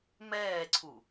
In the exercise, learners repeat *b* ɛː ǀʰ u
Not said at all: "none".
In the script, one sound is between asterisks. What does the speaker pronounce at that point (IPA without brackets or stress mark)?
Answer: m